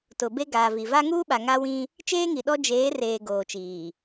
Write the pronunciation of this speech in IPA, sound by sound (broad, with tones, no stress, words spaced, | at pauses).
tʊ˨be˦ ɡaː˨vi˨ va˦ŋuː˦ɓa˨ ŋa˦wĩ˦ | t͡ʃeː˦ŋi˨ɗɔ˦ d͡ʒeː˨˦reː˨ ɡoː˨t͡ʃiː˨